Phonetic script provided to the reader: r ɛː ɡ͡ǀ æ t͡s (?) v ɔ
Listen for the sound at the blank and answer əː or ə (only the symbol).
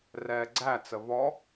ə